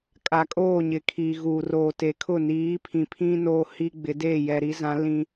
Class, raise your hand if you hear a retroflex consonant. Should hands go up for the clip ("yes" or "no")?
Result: no